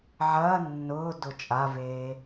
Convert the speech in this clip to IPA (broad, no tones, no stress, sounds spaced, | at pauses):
ʕ ɐː nː ʊː d ʊ t͡ʃʼ a v eː